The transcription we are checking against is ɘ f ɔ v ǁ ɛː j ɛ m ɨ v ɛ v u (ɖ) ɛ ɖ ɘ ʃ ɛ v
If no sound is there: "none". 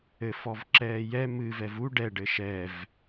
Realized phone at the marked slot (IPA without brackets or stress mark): ɖ